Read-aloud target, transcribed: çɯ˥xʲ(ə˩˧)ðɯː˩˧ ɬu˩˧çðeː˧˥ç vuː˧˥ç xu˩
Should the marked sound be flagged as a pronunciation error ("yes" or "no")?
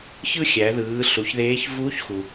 yes